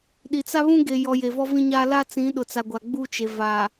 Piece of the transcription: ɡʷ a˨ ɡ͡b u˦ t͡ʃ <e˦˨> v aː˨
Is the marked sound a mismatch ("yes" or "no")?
yes